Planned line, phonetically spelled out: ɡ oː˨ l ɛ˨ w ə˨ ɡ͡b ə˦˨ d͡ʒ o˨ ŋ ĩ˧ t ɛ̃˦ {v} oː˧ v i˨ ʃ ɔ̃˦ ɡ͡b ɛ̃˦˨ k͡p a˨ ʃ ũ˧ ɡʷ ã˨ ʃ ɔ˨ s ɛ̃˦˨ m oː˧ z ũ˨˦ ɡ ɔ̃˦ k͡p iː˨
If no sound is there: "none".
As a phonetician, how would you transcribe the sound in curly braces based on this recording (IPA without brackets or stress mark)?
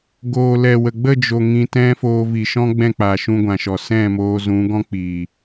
f